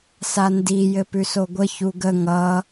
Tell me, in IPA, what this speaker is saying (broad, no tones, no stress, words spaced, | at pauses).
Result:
sandi jɘpʉsoɡʷə çuɡə ŋʌ